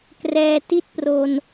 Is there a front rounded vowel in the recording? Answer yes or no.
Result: no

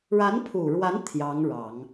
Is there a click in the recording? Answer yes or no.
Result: no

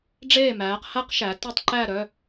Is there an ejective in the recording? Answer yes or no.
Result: no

